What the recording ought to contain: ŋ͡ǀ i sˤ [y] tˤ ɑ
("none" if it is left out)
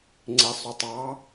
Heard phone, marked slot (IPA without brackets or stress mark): u